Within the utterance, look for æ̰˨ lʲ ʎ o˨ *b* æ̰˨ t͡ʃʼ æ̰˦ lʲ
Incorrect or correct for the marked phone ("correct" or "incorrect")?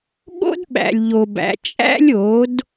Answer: correct